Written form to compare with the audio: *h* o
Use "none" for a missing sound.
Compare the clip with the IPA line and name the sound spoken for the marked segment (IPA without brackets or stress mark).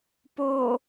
p